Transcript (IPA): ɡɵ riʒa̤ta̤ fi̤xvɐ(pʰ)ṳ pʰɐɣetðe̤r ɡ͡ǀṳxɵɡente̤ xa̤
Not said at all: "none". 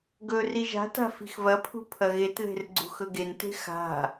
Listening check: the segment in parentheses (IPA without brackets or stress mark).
pʰ